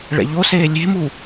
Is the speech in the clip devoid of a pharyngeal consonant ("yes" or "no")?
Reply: yes